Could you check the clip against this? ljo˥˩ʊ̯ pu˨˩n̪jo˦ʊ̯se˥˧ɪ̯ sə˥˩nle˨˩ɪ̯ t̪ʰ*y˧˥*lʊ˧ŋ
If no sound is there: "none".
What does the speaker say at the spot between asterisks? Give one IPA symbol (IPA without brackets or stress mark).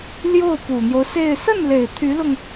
y˧˥